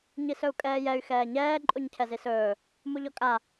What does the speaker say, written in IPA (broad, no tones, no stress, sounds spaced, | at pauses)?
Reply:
ɲ i s ɵ u̯ kʼ ɛː j ɛ y̯ x ɛː ɲ ɛː ǃʼ u ɲ cʰ ɛ z i s ɵː | m u ʎ ɔ kʼ a